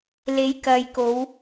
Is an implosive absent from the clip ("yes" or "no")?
yes